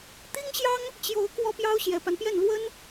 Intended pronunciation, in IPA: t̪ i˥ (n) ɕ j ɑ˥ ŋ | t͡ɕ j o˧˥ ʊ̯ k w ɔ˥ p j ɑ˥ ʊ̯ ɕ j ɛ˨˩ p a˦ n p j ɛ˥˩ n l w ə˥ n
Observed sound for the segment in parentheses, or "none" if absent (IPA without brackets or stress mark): ŋ